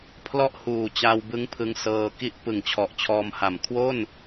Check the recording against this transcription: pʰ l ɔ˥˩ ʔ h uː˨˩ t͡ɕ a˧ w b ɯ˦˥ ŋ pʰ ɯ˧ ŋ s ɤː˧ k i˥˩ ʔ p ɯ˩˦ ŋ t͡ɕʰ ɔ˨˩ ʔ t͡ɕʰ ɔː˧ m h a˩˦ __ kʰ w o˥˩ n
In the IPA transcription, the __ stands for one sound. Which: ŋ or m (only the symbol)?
m